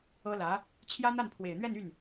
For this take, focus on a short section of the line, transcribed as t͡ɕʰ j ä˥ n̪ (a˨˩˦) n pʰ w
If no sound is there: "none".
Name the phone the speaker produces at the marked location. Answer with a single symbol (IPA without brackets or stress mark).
a˥˩